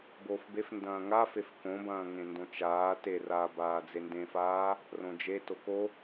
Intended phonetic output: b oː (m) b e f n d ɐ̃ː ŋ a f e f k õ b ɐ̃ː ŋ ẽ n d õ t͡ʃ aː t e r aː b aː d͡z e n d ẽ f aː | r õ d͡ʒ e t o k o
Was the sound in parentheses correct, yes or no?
no